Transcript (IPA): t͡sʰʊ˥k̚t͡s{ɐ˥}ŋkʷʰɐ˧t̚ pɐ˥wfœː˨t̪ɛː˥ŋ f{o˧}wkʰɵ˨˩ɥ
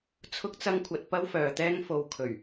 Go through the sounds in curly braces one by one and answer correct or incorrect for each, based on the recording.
correct, correct

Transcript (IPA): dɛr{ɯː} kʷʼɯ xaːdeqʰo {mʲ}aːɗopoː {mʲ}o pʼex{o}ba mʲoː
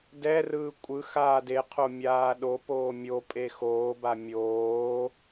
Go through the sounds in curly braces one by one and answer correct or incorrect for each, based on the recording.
correct, correct, correct, incorrect: oː

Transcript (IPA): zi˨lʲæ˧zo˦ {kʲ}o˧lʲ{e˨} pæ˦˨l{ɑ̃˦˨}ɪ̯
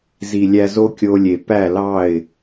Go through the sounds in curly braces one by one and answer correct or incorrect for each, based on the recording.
correct, correct, incorrect: ɑ˦˨

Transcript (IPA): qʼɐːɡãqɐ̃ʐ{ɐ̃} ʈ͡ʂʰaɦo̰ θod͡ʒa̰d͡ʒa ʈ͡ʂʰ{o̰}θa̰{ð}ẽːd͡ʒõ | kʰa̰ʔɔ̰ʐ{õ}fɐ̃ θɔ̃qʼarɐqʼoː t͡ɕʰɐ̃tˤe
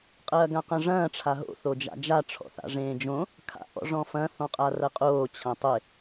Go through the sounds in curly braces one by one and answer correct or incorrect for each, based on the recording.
incorrect: ɐ̃ː, incorrect: ɔ̰, incorrect: ʐ, incorrect: ɔ̃

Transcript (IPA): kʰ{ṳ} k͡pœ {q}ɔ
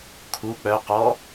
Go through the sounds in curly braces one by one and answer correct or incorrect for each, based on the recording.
incorrect: u, correct

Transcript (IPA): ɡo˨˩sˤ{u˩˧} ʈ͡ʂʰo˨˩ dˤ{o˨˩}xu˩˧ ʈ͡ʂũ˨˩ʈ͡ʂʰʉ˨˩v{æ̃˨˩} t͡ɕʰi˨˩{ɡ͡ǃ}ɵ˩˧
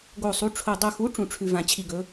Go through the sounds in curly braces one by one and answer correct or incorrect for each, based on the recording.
correct, correct, incorrect: ã˨˩, incorrect: ɡ

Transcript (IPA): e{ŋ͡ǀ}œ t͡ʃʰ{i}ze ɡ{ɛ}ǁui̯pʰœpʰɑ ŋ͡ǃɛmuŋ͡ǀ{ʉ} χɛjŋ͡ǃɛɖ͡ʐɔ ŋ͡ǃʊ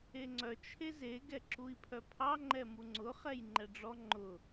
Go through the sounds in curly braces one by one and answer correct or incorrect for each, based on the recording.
correct, incorrect: e, correct, incorrect: ʊ

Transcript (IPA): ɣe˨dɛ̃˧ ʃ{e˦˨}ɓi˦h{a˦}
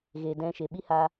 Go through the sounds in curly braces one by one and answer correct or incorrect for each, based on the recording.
incorrect: e˨, incorrect: a˧

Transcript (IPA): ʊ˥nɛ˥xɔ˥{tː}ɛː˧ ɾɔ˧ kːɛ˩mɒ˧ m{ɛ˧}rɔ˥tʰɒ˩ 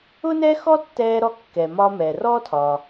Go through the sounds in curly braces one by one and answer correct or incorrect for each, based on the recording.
correct, incorrect: ɛ˩

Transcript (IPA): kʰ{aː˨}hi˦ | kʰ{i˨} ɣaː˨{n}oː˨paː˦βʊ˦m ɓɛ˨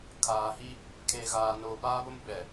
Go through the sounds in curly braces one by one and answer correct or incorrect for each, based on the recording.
correct, incorrect: e˨, correct

